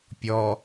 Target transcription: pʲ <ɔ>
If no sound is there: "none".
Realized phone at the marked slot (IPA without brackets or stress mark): ɔ